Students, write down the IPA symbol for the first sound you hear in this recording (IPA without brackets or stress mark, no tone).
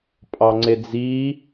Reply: pʼ